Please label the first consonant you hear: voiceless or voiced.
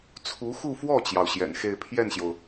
voiceless